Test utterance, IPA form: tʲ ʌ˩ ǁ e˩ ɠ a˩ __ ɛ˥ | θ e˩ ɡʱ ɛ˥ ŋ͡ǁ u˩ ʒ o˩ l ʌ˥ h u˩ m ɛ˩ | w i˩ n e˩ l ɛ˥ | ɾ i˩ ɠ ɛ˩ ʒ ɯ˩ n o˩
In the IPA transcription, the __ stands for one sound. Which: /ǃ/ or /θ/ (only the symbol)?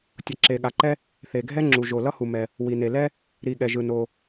ǃ